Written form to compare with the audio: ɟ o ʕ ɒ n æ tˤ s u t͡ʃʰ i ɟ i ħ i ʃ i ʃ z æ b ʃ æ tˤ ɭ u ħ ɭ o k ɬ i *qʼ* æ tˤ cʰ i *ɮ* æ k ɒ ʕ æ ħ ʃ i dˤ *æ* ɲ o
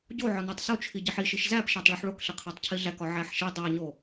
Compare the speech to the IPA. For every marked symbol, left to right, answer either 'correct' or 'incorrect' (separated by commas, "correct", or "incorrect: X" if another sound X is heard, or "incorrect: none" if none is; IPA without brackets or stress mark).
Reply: incorrect: qʰ, correct, correct